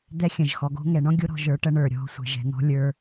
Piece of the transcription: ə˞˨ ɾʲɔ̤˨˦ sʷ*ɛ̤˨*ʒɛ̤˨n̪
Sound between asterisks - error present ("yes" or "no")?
no